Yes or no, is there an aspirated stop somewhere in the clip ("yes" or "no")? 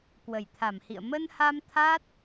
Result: yes